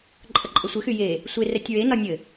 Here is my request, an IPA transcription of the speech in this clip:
ǃʼ ə ǃʼ ə sʷ ɘ x y j e | sʷ e r ɛ tʲ ɹ e n ɒ nʲ ɘ

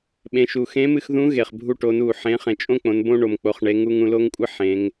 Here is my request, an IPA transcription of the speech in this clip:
ɓ ẽ˩˧ ʃ u˩ x ẽ˧˥ m ɨ˧ x ð ũ˧˥ ɣ e˩ χ bʱ u˧ ʈ o˩˧ n u˩ ħ ẽ˩˧ χ ẽ˩ t͡ʃʼ õ˥ k͡p õ˩˧ n b õ˥ ɳ o˩ m k͡p o˩˧ χ ɳ e˩˧ ŋ u˧ ŋ ũ˧ l o˥ ŋ kʷʼ ɨ˥ ħ ẽ˩˧ ŋ

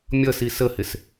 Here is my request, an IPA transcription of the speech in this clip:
mʲ ʌ s i s ə h ɪ s

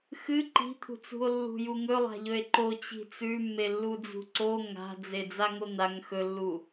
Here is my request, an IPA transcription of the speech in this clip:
x ɨ ǃ i̤ t̪ʰ ṳ t͡s ṳ o̯ lː ṳ j u ŋ ɵ lˠ a̤ ʎ ɵ e̯ ǃ o t͡ɕ i̤ t͡s ʉ mː e lː u d͡z ṳ ǀ o ŋ a̤ d͡z e d͡z a ŋ o n̪ a ŋ x ɵ lː u

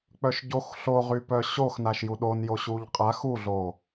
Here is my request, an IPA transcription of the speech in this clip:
k͡p œ ʃ ɟ o x ɬ o ʁ y p œ ɕ o x n a ʃ j u ɗ o n j o ɕ u ʎ qʼ a x u ɮ o

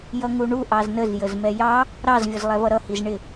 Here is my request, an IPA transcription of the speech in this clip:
j ʌ ŋ u ɳ u ʔ ɑ z n ə z j ə z m ɛ j ɑ | ɾ ɑ z vʲ ʊ z lˠ ɛ v ʌ ɾ ʌ h i z ɳ ɪ

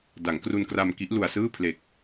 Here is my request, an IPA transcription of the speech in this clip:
d a˩˦ ŋ k r u˧ n k r a˧ m k i˦˥ ʔ l u˧ a̯ s ɯː˥˩ pʰ l e˨˩ k̚

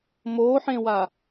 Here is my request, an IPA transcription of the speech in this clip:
m o ħ ẽ w a

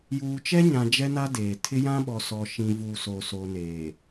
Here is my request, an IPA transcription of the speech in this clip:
j uː˨ t͡ʃ ɛ˦ ɲ ã˨ d͡ʒ ɛ˦ n a˦ d eː˨ tʰ ɪ˦ j ã˦ ɓ ɔ˨ s ɔ˨ ʃ ĩ˨ v u˨ s o˨ s o˨ n eː˨

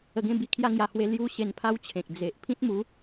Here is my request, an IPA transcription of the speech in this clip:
ə˧ ɡ ẽ˥˧ b i˦ kʰ j a˦ ŋ j a˧ h w e˥˧ l j u˥˧ ɕ e˧ n pʰ a˦ w t͡ɕʰ ẽ˨ k̚ d͡z e˨ ʔ pʰ ĩ˦ t̚ m u˨˦

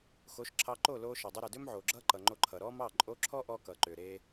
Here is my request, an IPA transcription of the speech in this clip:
x o˨˦ ʃ ǁʰ ɑ˧ ǃ o˦˨ l oː˧ ʃ ʌ˨ dˤ ɐ˧ ɾ ɛ˨ d ʏː˦ m ʕ oː˨ ɡ͡ǁ ʌː˦ ǃ ʌ˨ ŋ͡ǃ o˧ ǃʰ ʌ˨ ɾ ɔ˦ m ɑ˦˨ ǃʼ o˧ ǁʰ ɔ˦ ʔ ɔ˧ k ʌː˨ ǃ ʏː˨ ɾ e˧

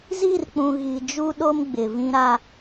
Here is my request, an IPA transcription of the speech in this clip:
z i˦˨ r k͡p ũ˨ ɣ i˨ d͡ʒ u˦ ɗ o˦ m ɡ͡b ɪ˨ v ĩ˦ ɾ a˦

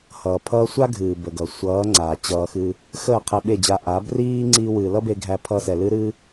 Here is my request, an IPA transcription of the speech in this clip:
h ʌː˨ pʰ ʌː˧ sʷ a˦ ɡʱ ɨː˨ b ə˨ ɡ ʌ˨ sʷ ʌː˨˦ ŋ͡ǀ aː˨ t͡ɕ ʌː˧ x ɨ˧ | x əː˦˨ qʰ ɛ˧ ɓ e˦˨ d͡ʑ a˧ ʔ a˨˦ b r iː˦ ŋ͡ǀ iː˦ w ɨː˧ l ʌ˦ b e˧ ɡʱ æ˧ pʰ ʌ˦ s ɛ˧ l ɨ˦ ɾ ɨː˦

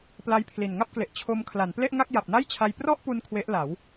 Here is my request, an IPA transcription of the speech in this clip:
p l a˦˥ j pʰ l i˨˩ n ŋ a˥˩ p̚ k l e˨˩ ʔ t͡ɕʰ o˧ m kʰ l a˩˦ n p l e˥˩ ʔ ŋ a˥˩ k̚ j a˨˩ p̚ n a˥˩ j t͡ɕʰ a˧ j p r ɔ˥˩ ʔ p u˧ n kʰ w e˦˥ ʔ l a˩˦ w

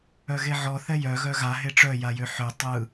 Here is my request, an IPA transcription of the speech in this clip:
œ ɣ e ʕ ɔ θ ɛ j œ ɣ œ ɣ a ɦ e ʈ͡ʂ œ j a j ø ħ ø tˤ ɯ

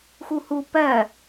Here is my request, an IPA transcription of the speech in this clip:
x u h u p ɜ

